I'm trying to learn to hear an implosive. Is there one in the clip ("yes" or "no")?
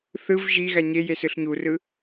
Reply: no